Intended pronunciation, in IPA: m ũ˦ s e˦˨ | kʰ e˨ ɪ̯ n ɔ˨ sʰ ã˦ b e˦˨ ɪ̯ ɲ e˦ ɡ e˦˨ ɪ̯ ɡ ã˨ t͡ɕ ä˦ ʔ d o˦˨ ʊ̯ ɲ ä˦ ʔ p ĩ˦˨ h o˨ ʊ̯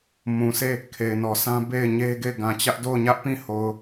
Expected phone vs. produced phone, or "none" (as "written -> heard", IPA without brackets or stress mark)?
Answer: ũ˦ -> ũ˨